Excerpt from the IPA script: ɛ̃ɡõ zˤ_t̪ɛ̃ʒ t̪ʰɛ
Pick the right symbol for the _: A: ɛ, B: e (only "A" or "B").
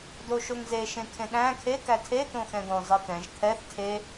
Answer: B